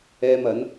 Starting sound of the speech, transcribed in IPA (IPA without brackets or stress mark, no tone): ɛː